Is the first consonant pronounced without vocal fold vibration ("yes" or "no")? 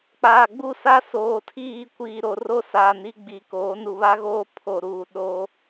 yes